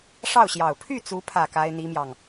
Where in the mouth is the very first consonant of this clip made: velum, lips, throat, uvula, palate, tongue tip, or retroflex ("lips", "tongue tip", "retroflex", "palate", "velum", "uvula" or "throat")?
retroflex